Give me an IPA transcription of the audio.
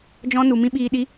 d͡ʒ ɔ̃˦ n u˨ m ĩ˦ ɓ iː˧ ɗ i˦

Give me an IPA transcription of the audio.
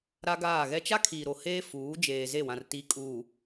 ɾ a˦ ɡ aː˦˨ ɣ ɛ˦ t͡ʃ a˦ kʰ iː˨ ɾ o˨ h eː˦ f uː˨˦ d͡ʒ eː˨ z e˦˨ w ã˨ r t i˨˦ kʼ uː˨

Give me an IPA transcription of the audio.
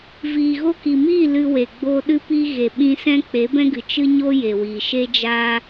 v iː˨ ɣ o˧ k i˨ m iː˦˨ l ɨ˧ w e˨ ɡ͡b o˧ ɗ ɨ˦ p i˧ ɣ e˨ ɓ ĩ˧ s ɛ̃˦ k͡p e˨˦ b ɛ̃˦ ɡ ɨ˨ t͡ʃ ɨ˦ ɲ o˦ j e˨ w iː˨ ʃ e˦ d͡ʒ aː˦

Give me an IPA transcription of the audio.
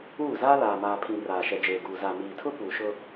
uː˦˨ z aː˦ l aː˨ m aː˨ pʰ ĩ˨ r aː˨ ʃ ɛ˨ d͡ʒ eː˨ ɡ uː˨ z a˨ m iː˨ tʰ ʊ˦ p uː˨ ʃ ʊ˦

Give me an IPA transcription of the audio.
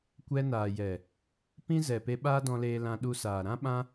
kʷ ɛ˧ n aː˨ j ɛ˨ | p ĩ˦ z ɛ˨ p e˧ ɓ aː˦ d ɔ̃˧ l eː˧ l ã˧ ɗ u˧ s aː˨ ɾ ã˦ ɓ ã˦

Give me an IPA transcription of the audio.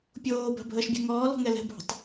pʲ oː b a̤ bʱ əː ʃ bʲ ɛ̤ ŋ ɔː l ɔ̤ ŋ ɛ l ɛ̤ bʱ o̤ tˤ

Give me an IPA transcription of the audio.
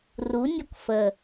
r u nʲ ɔ k f ə

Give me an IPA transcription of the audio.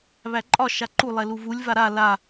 β æ ǃʼ ɒ ʃ a ǃ u lˠ ɛ l u v u lʲ v a ɾ a l a

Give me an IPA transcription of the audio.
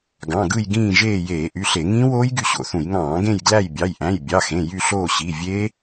ɡ ɑ̃˩˧˩ ɡ ɯ˦˨ j ɡ ĩː˦˨ ʒ eː˦˨ j eː˧˩˧ ʔ y˩˧˩ ɬ e˧˩˧ ŋ ĩː˦˥ w oː˦˥ j ɡ y˦˨ ɕ o̰˩˧˩ θ ũ˧˩˧ j ŋ ɑ̃ː˧˩˧ ɡ ẽ˦˨ j ɡ l æ˦˨ j bʲ ɑ˩˧˩ j ʔ æ̃˩˧˩ j bʲ ɑ˩˧˩ x ẽ˩˧˩ j y˦˨ ɬ oː˦˨ ɕ i˩˧˩ vʲ e˦˥

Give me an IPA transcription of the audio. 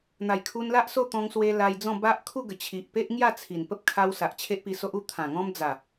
n̪ a˨˩ j kʰ u˧ n l a˦ ʔ s o˥˧ t̪ ɔ̃˧ ŋ s w e˧ l a˧ j d͡z ɔ̃˥˧ b a˦ ʔ kʰ u˥˧ ɡ ə˨˩ t͡ɕʰ i˨ ʔ p e˦ ʔ ŋ j a˥˧ t͡sʰ i˨˩ n p ə˦ p̚ kʰ a˧ w s a˨ ʔ t͡ɕʰ e˦ ʔ p i˧ s o˦ ʔ u˦ t̪ʰ ã˨˩ ŋ ɔ̃˦ m d͡z a˨˩

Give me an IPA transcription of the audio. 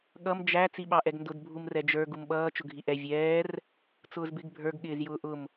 ɠ ʌ m d͡ʒ æ t͡s i ɓ ɑ ʔ ɛ ɡ n d ʊ d bʱ u m r ɛ d͡ʒ ə˞ ɡ u m ɓ ʌː t͡ʃ ʊ ɡʱ i ʔ ɛ vʲ ɛː r | t͡s ʊː z b ɪ ɡ bʱ ə˞ ɡ ɠ ɪː z j ʊː ʔ ʊ m

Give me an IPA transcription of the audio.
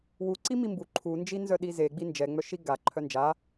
w u ǀ i m i m b u ǃʰ u n d͡ʒ i n z œ ɗ i z e ɡ͡b i n d͡ʒ ɛ ŋ͡m œ ʃ i ɡ a ǃʰ œ n d͡ʒ a

